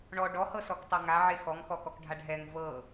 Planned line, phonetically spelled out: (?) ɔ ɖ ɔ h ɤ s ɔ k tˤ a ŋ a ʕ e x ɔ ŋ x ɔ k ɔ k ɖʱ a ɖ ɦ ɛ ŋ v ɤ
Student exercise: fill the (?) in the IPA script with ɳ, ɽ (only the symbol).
ɳ